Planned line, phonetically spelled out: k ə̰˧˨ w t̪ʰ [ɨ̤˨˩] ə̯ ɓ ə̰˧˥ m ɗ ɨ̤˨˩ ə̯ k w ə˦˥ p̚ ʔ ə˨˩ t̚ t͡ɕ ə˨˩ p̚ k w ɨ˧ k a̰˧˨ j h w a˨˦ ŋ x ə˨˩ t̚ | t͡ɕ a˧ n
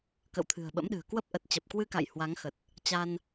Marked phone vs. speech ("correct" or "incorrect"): correct